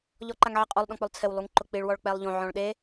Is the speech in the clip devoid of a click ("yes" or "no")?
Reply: no